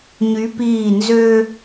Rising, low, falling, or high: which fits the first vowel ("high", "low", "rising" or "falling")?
rising